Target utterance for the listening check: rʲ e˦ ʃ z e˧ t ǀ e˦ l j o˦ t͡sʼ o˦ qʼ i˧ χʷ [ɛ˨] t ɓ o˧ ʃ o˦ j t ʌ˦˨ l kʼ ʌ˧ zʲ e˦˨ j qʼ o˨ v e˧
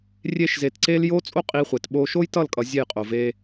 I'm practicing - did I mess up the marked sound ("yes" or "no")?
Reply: yes